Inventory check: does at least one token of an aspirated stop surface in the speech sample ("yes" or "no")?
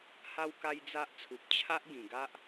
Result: yes